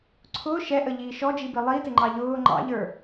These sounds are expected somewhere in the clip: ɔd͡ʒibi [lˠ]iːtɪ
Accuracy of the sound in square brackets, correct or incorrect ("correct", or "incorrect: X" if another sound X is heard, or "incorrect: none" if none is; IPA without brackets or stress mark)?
correct